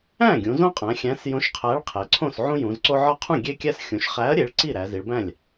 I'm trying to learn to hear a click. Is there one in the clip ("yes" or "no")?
yes